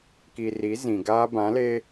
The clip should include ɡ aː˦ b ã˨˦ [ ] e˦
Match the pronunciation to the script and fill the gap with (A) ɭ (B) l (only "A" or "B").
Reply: B